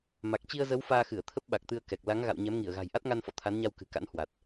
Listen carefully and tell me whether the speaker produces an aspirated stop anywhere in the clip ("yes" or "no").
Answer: yes